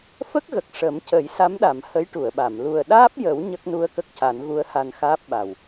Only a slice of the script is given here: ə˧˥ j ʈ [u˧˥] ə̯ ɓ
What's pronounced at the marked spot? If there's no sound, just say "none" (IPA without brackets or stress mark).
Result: u˨˩˨